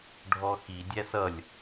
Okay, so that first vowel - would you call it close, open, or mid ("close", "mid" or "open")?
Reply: mid